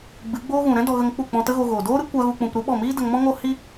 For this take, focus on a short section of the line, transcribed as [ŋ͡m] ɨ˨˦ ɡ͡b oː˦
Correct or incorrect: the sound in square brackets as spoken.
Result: incorrect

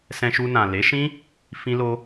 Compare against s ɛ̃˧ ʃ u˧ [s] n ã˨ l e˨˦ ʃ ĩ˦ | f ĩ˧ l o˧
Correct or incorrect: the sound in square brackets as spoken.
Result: incorrect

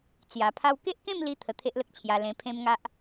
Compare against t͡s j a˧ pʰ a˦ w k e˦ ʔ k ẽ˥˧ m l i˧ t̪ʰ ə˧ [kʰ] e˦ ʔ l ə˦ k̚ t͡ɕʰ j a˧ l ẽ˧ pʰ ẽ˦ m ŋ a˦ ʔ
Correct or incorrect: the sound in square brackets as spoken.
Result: incorrect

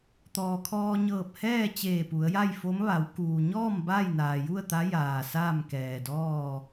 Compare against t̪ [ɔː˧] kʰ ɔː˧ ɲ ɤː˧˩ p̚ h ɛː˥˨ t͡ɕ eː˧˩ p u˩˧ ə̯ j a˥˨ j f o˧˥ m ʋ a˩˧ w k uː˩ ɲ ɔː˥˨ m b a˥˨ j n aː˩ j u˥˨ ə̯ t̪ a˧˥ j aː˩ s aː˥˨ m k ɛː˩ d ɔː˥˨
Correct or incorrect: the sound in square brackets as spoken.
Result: incorrect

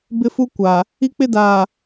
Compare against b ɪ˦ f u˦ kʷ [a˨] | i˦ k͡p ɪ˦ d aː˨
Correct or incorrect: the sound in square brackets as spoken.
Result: correct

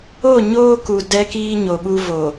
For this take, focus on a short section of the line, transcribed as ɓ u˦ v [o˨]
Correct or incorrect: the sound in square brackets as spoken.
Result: correct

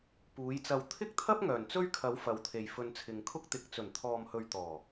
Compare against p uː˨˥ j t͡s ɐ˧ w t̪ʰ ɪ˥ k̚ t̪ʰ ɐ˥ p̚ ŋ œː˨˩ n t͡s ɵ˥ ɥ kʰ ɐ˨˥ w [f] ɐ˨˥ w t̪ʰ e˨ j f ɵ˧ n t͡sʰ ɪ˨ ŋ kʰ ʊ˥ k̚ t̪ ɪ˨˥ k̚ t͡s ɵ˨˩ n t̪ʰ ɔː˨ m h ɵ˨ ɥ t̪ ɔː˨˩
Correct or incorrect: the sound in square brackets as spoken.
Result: correct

